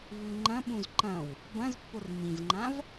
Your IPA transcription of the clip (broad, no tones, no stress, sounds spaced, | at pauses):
v ʉ ŋ͡ǃ ɐ̃ ɓ ũ z ǃ ɐ̃ w | b ɐ̃ z pː o r m ĩ z ŋ͡ǃ ã v